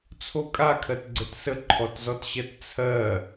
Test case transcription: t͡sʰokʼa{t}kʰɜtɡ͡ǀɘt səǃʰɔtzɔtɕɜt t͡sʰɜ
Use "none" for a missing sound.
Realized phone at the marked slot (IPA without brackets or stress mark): none